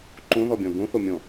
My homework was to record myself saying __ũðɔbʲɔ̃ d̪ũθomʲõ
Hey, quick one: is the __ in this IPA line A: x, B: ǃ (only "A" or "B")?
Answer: B